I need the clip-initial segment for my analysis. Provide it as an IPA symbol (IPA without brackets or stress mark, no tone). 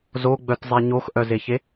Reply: z